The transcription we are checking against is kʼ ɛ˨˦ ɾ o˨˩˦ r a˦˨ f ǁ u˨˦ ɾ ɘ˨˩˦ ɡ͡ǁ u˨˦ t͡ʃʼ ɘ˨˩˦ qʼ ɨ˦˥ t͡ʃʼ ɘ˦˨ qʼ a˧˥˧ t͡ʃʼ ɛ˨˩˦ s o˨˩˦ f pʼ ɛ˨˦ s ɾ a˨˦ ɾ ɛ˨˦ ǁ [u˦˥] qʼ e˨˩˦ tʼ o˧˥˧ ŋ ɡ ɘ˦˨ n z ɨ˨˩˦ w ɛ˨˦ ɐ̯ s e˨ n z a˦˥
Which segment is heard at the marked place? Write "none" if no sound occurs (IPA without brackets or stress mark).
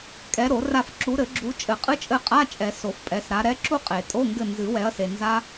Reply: u˦˨